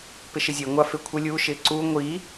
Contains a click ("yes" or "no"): yes